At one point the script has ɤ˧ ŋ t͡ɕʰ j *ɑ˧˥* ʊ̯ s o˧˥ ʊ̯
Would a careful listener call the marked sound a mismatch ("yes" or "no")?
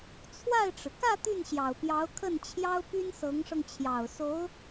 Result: yes